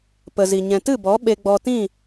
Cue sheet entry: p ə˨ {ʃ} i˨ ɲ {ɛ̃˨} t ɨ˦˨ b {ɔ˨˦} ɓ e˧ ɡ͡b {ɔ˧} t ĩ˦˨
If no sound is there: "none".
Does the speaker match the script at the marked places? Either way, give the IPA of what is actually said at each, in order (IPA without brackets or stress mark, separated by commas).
z, ɛ̃˨, ɔ˨˦, ɔ˧